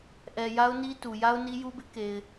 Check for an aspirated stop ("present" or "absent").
absent